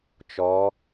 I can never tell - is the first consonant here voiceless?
yes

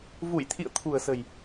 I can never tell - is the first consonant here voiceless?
no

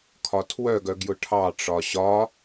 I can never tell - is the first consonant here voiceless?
yes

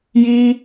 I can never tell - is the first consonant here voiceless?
no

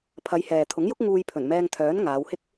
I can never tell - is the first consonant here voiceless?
yes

